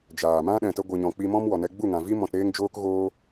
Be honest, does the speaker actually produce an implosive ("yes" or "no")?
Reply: yes